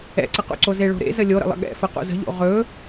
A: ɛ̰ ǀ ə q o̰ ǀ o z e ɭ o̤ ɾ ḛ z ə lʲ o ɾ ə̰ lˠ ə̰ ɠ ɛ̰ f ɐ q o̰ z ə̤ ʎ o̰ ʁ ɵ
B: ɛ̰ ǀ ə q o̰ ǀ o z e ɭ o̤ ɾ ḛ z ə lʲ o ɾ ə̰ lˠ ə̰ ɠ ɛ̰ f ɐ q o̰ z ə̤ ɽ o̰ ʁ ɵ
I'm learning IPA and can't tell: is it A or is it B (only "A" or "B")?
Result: A